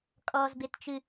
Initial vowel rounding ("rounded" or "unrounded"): rounded